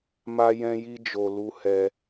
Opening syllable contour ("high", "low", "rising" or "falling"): high